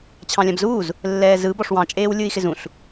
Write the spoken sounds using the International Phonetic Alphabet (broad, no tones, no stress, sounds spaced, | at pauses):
t͡ɕʰ ɑ̃ lʲ ã b z uː z | lː ɛː z ɯ b ɔ ʂ w ɑ̃ t͡ʃʼ eː w lʲ ɯ i̯ x ɪ z ũ ɬ